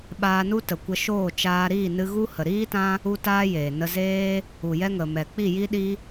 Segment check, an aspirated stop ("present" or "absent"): absent